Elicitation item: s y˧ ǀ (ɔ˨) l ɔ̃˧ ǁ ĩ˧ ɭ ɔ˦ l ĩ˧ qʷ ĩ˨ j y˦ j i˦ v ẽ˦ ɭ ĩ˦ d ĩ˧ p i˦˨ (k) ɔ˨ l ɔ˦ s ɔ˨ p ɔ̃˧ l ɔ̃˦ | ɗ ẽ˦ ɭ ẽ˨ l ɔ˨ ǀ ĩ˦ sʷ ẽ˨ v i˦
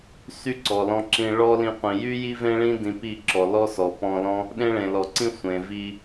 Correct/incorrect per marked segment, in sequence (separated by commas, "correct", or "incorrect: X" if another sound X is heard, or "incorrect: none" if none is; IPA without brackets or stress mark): correct, incorrect: ǁ